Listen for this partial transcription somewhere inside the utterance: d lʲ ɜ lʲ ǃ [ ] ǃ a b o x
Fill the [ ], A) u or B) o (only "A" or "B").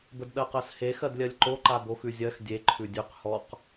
B